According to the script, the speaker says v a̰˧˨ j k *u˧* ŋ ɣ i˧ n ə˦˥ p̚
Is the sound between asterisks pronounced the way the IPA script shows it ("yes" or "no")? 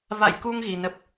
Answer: yes